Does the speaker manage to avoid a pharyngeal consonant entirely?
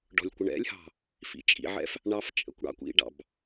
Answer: no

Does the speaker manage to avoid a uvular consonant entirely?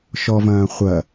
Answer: no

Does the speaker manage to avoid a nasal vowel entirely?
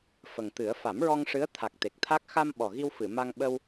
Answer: yes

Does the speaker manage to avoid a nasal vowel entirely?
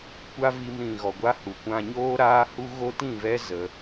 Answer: no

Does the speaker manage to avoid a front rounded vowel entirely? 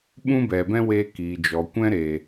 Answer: yes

